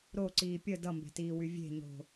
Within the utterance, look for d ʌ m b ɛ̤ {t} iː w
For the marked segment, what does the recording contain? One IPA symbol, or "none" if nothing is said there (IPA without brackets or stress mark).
t